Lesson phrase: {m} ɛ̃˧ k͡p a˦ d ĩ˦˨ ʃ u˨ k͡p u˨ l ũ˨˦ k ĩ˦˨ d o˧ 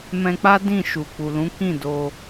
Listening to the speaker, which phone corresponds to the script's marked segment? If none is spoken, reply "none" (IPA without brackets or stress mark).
m